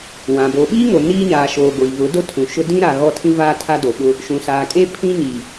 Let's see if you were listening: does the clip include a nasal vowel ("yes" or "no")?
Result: yes